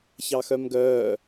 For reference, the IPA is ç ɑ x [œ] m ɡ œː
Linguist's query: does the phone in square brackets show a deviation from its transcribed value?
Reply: no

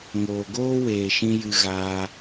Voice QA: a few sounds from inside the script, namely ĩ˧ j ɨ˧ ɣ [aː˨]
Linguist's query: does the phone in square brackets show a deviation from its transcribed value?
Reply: yes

